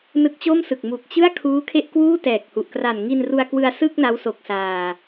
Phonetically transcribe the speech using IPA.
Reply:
n ɯ˦˥ k̚ t͡ɕ o˥˩ m s ɯ˨˩ k̚ m u˨˩ k̚ t͡ɕ ɯ˥˩ a̯ kʰ uː˦˥ kʰ e˥˩ ʔ k w uː˥˩ t ɛː˨˩ k̚ h u˨˩ ʔ k r a˨˩ n ŋ i˧ n r u˧ a̯ k w ɯ˧ a̯ s ɯ˥˩ k̚ n a˦˥ w s o˨˩ k̚ s aː˨˩

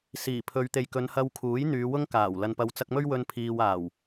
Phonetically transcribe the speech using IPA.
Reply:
s iː˨˩ pʰ ɵ˨˧ ɥ t̪ e˨ j k ɵ˨˧ n h ɐ˧ w kʰ uː˨˥ j n̪ yː˨˧ w ʊ˥ ŋ k aː˨˩ w l ɐ˨ n p ɐ˨˧ w t͡s ɐ˧ k̚ m ɵ˥ ɥ w ɵ˧ n pʰ iː˨ w aː˨˩ w

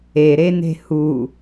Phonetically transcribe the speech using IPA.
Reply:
e ɾ e n e̤ h u

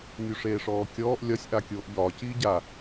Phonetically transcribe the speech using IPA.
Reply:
nʲ u ʂ eː ʂ ɔː kʲ ɔː ʔ lʲ ɒ sʲ ʔ a kʲ oː ʔ ʎ ɒː c iː ɟ a

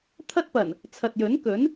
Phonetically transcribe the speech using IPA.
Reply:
t̪ʰ ɐ˥ t̚ p ɐ˨˩ n | t͡sʰ ɐ˨ t̚ j ɵ˨˥ n k ɵ˨˥ n

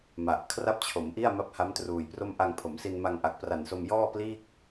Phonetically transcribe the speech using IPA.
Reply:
m a˨˩ ʔ kʰ r a˥˩ p̚ t͡ɕʰ o˩˦ m ʔ i˥˩ a̯ m a˥˩ p̚ h a˦˥ m t r uː˨˩ j p r o˥˩ m ʔ a˧ ŋ pʰ o˩˦ m s i˧ n m a˧ ŋ ʔ a˨˩ k̚ p r a˨˩ n s o˧ m j ɔː˥˩ p l iː˥˩ k̚

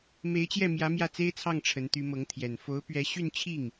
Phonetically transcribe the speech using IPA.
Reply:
m e˧˥ ɪ̯ t͡ɕ j ɛ˥˩ m j ä˧˥ m j ä˥˩ t͡s e˥ ɪ̯ t͡sʰ ɑ˥˩ ŋ ʈ͡ʂʰ ə˧˥ n t̪ y˧˥ m ɤ˧˥ ŋ t̪ʰ j ɛ˨˩ n f o˧˥ ʊ̯ p ɥ ɛ˧˥ ɕ y˥˧ n t͡ɕʰ i˥˩ ŋ

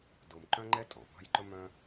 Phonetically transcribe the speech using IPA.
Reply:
d o˧ m ǃ œ̃˥ ŋ͡ǃ ɛ˥ tʼ ɔ̃˩ p ɑ̤˥ j ǃ ɵ˥ m œ̃˥

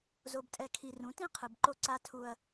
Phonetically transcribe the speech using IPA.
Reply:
z o˨ b tʼ ɛ˨ kʰ i˨ r ũ˨˦ t ĩ˦ qʰ ɯ˨ b ǃ o˦ ǀ a˦ tʰ u˦ ɐ̯

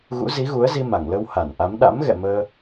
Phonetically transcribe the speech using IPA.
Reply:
ɣ ṵ˧˥ z i˨˦ ɣ u˨˦ ə̯ z i˧ m a˧˩ ŋ l ə˧ w h a˧˩ n ʔ a˨˦ m ɗ a̰˧˥ m ɣ ɛ̰˧˨ m əː˧

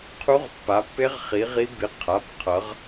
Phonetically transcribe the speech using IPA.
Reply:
qʰ u˦˥ ʁ pː a˨˥ pː e˦˥ ʁ χ i˨˥ ʁ i˦˥ b i˨˥ qʰ a˩˧˩ p qʰ ʌ˨˥ ʁ

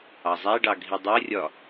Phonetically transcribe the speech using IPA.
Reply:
ɑ zˤ æ ɖ ɑ ɡʱ i dˤ ʊ ə̯ rʲ ɒ

